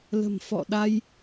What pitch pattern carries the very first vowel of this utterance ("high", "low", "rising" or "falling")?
low